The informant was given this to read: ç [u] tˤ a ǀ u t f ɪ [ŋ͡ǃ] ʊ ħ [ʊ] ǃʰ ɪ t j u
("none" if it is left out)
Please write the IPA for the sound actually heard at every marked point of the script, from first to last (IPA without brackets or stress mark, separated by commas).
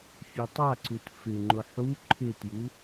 u, ŋ͡ǃ, u